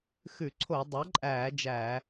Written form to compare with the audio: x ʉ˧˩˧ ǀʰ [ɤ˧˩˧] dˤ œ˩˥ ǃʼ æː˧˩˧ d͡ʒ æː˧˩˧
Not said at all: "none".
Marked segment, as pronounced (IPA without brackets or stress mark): o˧˩˧